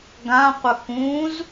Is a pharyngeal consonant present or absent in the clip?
absent